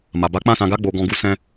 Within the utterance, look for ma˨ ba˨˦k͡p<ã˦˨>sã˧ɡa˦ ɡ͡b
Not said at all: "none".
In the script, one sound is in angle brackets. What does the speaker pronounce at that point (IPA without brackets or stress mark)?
ã˦˨